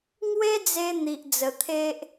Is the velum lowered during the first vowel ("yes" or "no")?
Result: no